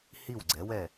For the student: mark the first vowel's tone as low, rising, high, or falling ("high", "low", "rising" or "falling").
falling